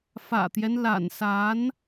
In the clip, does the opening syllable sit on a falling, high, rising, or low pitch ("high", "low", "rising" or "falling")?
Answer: low